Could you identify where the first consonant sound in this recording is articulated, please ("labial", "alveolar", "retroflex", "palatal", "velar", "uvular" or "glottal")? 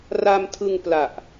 alveolar